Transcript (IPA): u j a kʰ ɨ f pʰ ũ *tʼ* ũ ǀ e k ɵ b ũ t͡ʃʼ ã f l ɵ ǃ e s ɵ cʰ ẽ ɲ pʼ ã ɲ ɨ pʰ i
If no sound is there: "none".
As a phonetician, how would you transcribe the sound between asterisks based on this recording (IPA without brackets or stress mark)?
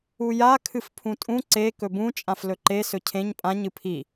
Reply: tʼ